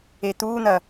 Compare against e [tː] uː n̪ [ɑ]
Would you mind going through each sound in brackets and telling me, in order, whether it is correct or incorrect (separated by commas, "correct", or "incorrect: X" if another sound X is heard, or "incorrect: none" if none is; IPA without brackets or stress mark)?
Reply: incorrect: t̪, incorrect: ɐ